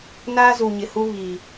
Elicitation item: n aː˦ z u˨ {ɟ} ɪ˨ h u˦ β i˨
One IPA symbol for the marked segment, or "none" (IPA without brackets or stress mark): ɲ